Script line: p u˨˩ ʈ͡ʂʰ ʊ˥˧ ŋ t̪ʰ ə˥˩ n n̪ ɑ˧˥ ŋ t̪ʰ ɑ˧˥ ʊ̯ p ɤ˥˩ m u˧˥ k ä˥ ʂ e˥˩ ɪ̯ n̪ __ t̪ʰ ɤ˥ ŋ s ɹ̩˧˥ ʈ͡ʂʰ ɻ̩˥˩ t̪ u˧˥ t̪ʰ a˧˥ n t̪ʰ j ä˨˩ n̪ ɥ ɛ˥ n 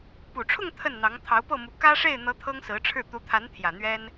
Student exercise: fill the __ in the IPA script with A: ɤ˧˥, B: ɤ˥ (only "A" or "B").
A